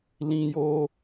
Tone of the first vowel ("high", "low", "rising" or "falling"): high